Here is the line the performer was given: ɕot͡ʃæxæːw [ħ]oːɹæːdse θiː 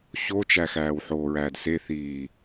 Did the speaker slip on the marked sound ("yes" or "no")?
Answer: no